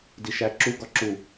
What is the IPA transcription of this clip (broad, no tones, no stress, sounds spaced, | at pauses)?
d i ʃ æ ǁ u ɡ ɒ ǁ u